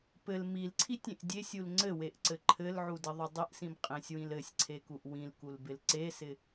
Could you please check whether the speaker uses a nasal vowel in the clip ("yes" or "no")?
yes